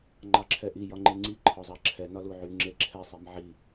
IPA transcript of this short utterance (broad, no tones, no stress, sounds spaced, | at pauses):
ŋ͡ǃ ɑ ǁʰ ɛ ʔ i j ɒ ŋ͡ǃ e ŋ͡ǀ i ǃʰ ɒ zˤ ɑ ǁʰ ɛ n ɒ l u ʕ y ŋ͡ǁ e ǁʰ ɛ sˤ i m ʕ i